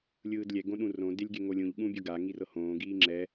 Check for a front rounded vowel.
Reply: absent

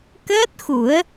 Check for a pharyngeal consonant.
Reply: absent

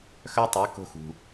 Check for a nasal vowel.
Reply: absent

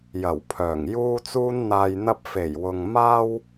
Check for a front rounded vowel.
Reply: present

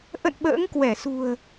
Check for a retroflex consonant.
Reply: absent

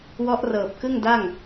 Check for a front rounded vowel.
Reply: absent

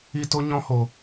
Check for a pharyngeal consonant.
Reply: absent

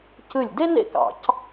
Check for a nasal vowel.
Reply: absent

